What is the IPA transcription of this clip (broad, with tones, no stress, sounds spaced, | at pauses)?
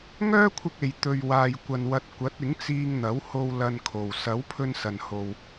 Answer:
ŋ œː˥ kʷʰ ɪ˧ k̚ e˨ j t̪ ɵ˨ ɥ w aː˨ j kʷ ɐ˨ n w ɐ˨˥ t̚ kʷ ɐ˨˥ t̚ ɪ˨˥ ŋ t͡s iː˧ ŋ n̪ ɐ˨˥ w h o˧ w l ɐ˧ n kʰ o˨ w s ɐ˨˥ w pʰ ɵ˧ n s ɐ˨ n h o˨ w